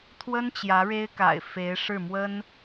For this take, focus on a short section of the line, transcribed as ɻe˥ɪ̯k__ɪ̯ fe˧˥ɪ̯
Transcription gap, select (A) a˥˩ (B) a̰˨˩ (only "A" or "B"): B